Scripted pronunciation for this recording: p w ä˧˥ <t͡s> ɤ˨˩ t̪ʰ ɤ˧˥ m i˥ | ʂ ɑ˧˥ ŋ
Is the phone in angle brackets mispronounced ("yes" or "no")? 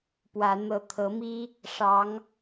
yes